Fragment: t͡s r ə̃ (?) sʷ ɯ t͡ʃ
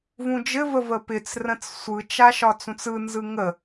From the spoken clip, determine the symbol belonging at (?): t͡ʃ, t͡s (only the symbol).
t͡s